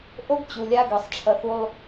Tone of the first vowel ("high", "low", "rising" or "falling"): high